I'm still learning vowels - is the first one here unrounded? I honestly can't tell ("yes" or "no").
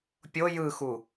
no